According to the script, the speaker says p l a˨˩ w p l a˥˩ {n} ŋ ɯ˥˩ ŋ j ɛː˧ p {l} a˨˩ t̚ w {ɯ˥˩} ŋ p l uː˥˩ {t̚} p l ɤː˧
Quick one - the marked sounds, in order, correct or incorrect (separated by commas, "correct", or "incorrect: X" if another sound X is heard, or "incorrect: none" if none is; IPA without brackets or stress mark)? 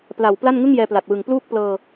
correct, correct, incorrect: ɯ˨˩, incorrect: k̚